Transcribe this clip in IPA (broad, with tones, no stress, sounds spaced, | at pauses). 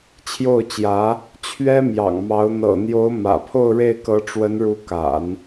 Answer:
t͡ɕʰ j o˥˩ ʊ̯ t͡ɕ j ä˧˥ | t͡ɕʰ ɥ ɛ˥ m j ɑ̰˨˩ ŋ m ɑ˧˥ ʊ̯ n̪ ɤ̰˨˩ n̪ j o˧˥ ʊ̯ m ä̰˨˩ pʰ o˥˧ ʊ̯ ɻ e˥˩ ɪ̯ k ɤ˧˥ ʈ͡ʂ w ə˧˥ n ɻ u˧˥ k a̰˨˩˦ n